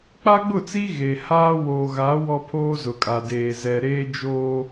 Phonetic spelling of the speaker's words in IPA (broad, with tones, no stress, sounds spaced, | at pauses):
k͡p a˦ ɡ͡b ʊ˦˨ t͡s i˦ ɣ e˨ h aː˦ w oː˨ ɣ a˨˦ w ɔ˦ pʰ oː˦ z ʊ˨ kʼ a˨ d eː˨ z ɛ˨ ɾ eː˦ d͡ʒ oː˦